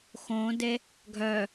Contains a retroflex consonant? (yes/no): no